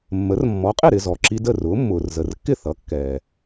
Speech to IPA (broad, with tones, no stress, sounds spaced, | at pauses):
mː ə˩˥ r mː ɔ˩˥ qʼ ɪ˥˩ ɾ ɪ˧ z ɔ˩ ǁ i˧ d ə˥˩ r ʊː˩˥ mː ʊː˩ r z ə˩ r kː ɪ˥˩ θ ʌ˩˥ kː ɛː˩